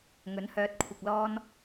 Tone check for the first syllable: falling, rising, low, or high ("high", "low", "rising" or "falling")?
rising